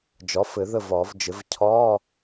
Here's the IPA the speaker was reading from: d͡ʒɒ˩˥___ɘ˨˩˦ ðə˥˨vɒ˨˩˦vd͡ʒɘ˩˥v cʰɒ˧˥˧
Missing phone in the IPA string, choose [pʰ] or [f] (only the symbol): f